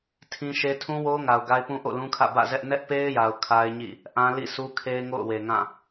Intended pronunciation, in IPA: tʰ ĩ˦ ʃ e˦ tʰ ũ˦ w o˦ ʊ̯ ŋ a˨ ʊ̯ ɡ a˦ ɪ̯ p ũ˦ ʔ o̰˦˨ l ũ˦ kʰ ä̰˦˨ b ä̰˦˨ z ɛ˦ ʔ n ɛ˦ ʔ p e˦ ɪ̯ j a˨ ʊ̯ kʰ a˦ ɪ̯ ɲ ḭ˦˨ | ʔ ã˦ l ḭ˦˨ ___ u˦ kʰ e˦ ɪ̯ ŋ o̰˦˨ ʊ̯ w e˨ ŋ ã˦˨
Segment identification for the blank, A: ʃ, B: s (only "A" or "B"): B